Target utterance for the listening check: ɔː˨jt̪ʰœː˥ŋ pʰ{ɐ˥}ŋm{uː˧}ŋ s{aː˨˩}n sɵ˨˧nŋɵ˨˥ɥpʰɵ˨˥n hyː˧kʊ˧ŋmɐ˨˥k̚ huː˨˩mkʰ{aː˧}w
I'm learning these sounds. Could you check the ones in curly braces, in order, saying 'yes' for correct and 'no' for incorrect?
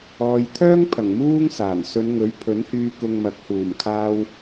no, no, yes, yes

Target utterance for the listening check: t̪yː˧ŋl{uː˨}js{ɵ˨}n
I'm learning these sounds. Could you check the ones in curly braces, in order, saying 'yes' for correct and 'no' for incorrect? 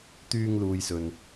yes, yes

